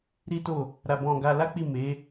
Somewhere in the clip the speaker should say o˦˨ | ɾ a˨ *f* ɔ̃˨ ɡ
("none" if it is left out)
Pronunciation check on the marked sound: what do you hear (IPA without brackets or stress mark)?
b